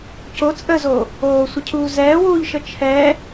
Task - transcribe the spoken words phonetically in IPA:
c o t͡sʼ ə z o | oː sʷ ə cʰ uː z ɛː w uː ʎ ʃ ə t͡ʃʰ ɛ

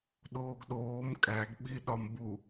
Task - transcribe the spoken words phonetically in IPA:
ɗ oː ɡ ɗ oː m kʼ æ ɡ ɓ i ɗ ɒ m b u

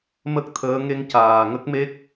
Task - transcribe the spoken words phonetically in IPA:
m ə˦˥ k̚ t̪ʰ əː˧˥ ŋ e˧ ŋ c aː˨˩ ŋ ə˦˥ k̚ m e˦˥ k̚

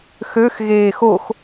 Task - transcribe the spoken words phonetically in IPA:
x ø x ɣ eː x o x

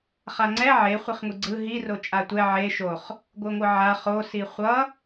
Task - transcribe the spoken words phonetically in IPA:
χ a ŋ͡ǀ ɛ ʕ e χʷ i χ ŋʷ i ɡ͡ǀ ɯ ɦ i r o t͡ʃʼ a tʷ ɛ ʕ e ʃ o χ | ɡʷ ɯ ŋʷ ɯ ʕ a χ o s i χʷ ʌ

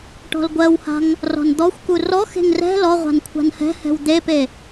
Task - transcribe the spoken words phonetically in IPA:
ʈ ɔ̤ l ɡʷ ɜ w h a̤ ŋ | r ɔ̤ n d̪ ɔ xʷ k u r ɔ x e̤ ŋ r ɛ̤ l ɔ ʁʷ a̤ n kʷʰ a̤ n h ɛ̤ h ɛ̤ w d̪ e p e

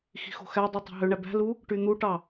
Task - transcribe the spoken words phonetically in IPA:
x i̤ x o̤ x æ dˤ ɯ tˤ ɑ̤ ɦ ø ɳ æ b æ̤ l u | ʈ y n̪ u ʈ ɑ

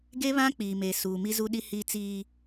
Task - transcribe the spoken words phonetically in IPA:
ɡ e˦ β ã˦ k͡p iː˨ m e˨ s uː˨ m i˦ z u˦ ɗ i˦ h i˦ t͡s iː˦

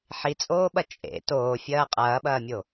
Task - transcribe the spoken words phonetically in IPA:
ħ i t͡sʼ oː ɓ ɐ t͡ʃʼ ḛ t oː fʲ ɐː qʼ ɐː ɓ ɐː mʲ o

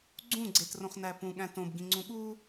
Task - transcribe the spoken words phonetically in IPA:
ɡ͡ǀ ũ ɡ͡ǀ e t r õ χ n æ p ũ ɠ æ̃ t õ b ɡ ĩ ŋ͡ǀ ũ ɠ u

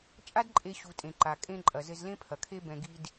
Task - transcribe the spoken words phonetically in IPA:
t͡ʃʼ a˥ d ǃʼ e˧ ɕ u˩ tʼ ẽ˩ ǃ a˩ kʼ ẽ˧ ǃʼ ɐ˩ z ɘ˧ z l ẽ˥ pʰ ɐ˩ kʰ e˥ b ɛ̃˧ ɡ i˧ d

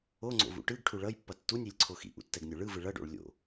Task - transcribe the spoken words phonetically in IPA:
o ŋ͡ǀ o̰ v ṵ ʈ ɯ ɡ ʈʰ u ɭ ʌ j pː ʌ tː u nʲ i lʲ ǀʰ o x ḭ ʔ ṵ tː ɛ ɡ nʲ o ɭ ɯ v ɯ ɭ ʌ ɖ o̰ ɭ lʲ o̰

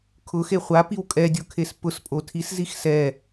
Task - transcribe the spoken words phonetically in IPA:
kʰ ʊ x e χʷ a p i w kʼ ɛ dʲ o kʰ e s p ʊ s pʼ o tʰ i s z i x s ɛ

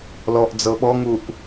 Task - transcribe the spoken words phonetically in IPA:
l ɔ ʔ d͡z ɤ ɓ ɔ ŋ u ʔ

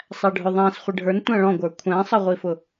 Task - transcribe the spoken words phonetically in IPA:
sˤ æ ɖʱ ʊ ðˤ æ̃ s χʷ ɪ ɖʱ ə˞ n tʷ æ̃ ɭ ɔ̃ ɡʷ ə˞ kʷʰ æ̃ sˤ ʌ ʁʷ i f ʊ

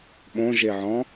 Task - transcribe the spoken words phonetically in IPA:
ɓ õ ʒ e ʕ ɔ̃

